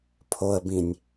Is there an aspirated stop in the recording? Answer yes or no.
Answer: yes